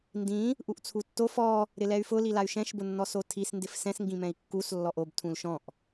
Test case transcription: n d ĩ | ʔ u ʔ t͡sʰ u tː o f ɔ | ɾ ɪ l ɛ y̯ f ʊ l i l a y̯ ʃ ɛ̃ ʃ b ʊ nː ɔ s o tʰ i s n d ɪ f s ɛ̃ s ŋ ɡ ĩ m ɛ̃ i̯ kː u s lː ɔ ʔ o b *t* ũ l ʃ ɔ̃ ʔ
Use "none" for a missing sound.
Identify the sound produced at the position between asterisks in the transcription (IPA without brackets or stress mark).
tʰ